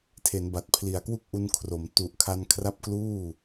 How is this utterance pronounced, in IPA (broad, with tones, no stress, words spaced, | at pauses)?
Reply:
tʰe˩˦n ba˨˩t̚pʰli˨˩a̯kwu˥˩k̚ʔu˧n kʰro˩˦m tu˨˩ʔkʰa˧nkʰra˦˥p̚ kluː˥˩